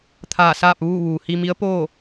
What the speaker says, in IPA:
t̪ʰ aː˧˩ s aː˥˨ p̚ ʋ uː˥˨ ʋ uː˩ h i˧ m i˧˥ ə̯ p oː˥˨

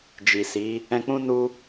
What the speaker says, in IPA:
d͡ʒ i˨ s i˨˦ | ɛ̃˧ k͡p ũ˦ n u˧

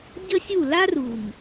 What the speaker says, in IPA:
ɟ ə˦ sʲ u˦˨ l a˦ r u˨ ŋ

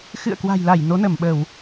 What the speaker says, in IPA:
x ɨ̰˧˨ ə̯ k w a̤˨˩ j l a˧˩ j n o˨˦ n ə˧˩ m ɓ ə˧˩˨ w

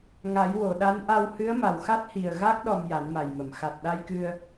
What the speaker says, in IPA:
ŋ a˨˩˦ j w o˨˩˨ ɗ a˧˥ n ʔ a˧ w h ɨ˧˥ ə̯ m a˨˩ w x a˦˥ t̚ h i˨˩ ə̯ ɣ a˦˥ k̚ ɗ ɔ˧ m j a˨˩˦ n m a˨˩ j m ə˨˩˨ m x a˨˩ t̚ ɗ a˧ j k ɨ˧ ə̯

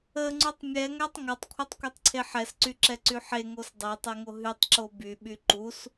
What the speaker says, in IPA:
ə ŋ͡ǀ u tˤ mʲ ɛ ŋ æ tˤ ŋ a tˤ kʷʰ a tˤ kʷ ɛ tˤ ǀʰ e ħ ɛ s ǀ y ǁ ɛ ǀ y ħ e ŋ o s dˤ e tˤ e ŋ o ɦ y tˤ ǁ o b y ɓ y ǃ u s

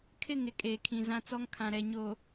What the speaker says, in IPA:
kʰ ɪ˦˨ ŋ ɪ˨ kʼ eː˨ kʰ ĩ˨ z ã˦ t͡s ɔ˦ ŋ kʰ ã˨ ɾ ɛ˨ ɲ o˨

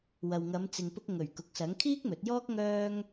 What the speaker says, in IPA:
w ɐ˨ w ŋ ɐ˨˧ m t͡s ɪ˨ ŋ p ʊ˧ k̚ ŋ ɵ˨˩ ɥ k ʊ˨ k̚ s ɐ˨˥ ŋ kʰ iː˥ k̚ m ɵ˨˥ t̚ j ɔː˥ k̚ ŋ œː˥ ŋ

